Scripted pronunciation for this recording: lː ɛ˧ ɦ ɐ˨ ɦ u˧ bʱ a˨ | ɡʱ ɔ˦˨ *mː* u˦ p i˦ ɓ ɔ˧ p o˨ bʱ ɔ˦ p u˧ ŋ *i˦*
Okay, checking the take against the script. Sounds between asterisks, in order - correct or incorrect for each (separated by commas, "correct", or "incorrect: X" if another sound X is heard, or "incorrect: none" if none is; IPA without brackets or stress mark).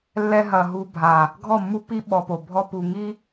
correct, correct